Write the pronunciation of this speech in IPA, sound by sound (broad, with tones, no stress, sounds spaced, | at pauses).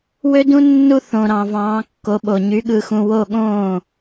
w ø˦ d ũ˦ nː u˦ θ õ˨˩ ɾ ɑ̃˨˩ v ɑ̃ː˩˧ kː o˩˧ ɓ o˨˩ ɲ y˩˧ ɠ ɯ˨˩ x ũ˨˩ w o˥˩ ɠ õː˥˩